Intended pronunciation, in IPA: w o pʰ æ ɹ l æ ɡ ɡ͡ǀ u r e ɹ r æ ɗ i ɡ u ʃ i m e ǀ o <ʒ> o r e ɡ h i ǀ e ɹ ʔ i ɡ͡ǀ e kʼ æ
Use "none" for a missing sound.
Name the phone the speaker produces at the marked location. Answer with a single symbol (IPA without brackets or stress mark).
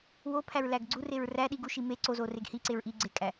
z